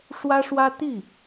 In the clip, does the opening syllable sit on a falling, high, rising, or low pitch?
high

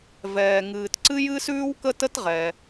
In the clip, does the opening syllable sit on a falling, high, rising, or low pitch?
low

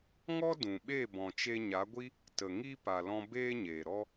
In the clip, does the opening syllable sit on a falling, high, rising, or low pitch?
high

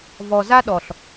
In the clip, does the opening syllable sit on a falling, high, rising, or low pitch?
low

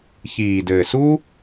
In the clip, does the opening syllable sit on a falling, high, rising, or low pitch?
low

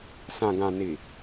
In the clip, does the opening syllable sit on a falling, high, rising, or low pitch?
low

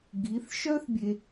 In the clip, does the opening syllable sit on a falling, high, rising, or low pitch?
rising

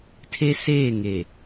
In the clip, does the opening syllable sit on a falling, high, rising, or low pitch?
high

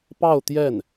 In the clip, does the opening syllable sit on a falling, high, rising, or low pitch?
falling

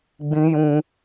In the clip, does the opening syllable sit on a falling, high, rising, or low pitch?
high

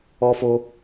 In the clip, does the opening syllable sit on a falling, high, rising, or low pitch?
high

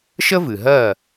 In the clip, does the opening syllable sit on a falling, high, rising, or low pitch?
high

